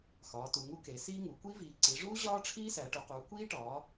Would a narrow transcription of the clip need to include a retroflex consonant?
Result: yes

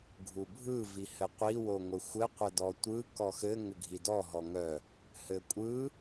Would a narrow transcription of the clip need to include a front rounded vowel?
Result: yes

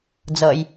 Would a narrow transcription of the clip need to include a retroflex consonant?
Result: no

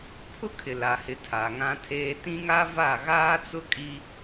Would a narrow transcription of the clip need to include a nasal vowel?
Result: yes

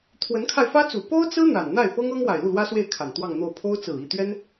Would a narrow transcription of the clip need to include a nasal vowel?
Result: no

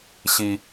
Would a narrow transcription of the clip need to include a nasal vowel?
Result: no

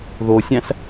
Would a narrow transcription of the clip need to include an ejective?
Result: no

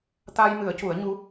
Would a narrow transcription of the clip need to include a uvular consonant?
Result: no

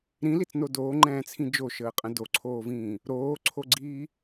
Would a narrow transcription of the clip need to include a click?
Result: yes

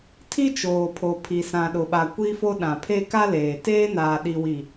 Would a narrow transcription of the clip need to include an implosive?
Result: yes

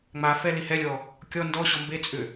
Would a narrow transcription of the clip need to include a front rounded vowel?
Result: yes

